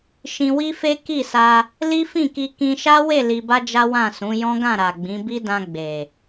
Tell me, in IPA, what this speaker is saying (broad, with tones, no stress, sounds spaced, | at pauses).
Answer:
ʃ ĩ˧ w i˦ f e˦ k i˦˨ s a˧ | l i˦ f ĩ˦˨ k i˧ k ĩ˧ ʃ a˦ w e˦˨ l i˧ b a˦ d͡ʒ a˦ w ã˦˨ s ũ˨˦ j ɔ̃˦ ɡ ã˦˨ ɾ a˨ ɡ͡b ĩ˨˦ b i˦ d ã˧ ɡ͡b e˨